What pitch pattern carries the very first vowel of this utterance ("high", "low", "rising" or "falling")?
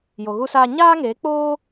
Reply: low